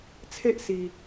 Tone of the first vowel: high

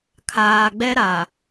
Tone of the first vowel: low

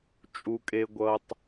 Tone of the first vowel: low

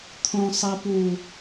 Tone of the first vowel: low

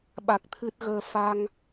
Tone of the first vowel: low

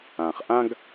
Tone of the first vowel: low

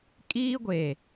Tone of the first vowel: high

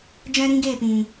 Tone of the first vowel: high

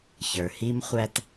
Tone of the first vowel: low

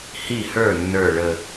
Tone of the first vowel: falling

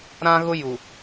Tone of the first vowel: high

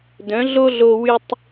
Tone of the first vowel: rising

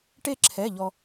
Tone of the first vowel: falling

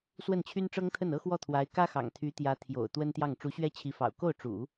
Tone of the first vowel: falling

